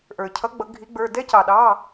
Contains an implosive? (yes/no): yes